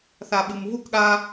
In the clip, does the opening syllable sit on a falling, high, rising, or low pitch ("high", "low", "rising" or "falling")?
low